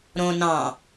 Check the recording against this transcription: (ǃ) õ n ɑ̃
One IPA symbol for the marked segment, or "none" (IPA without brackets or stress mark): ɾ